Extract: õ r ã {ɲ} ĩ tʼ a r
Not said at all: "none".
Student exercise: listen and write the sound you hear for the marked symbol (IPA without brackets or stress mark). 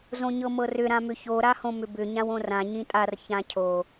ɲ